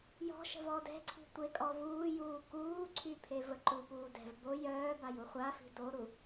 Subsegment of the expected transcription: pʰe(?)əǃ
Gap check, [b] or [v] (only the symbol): v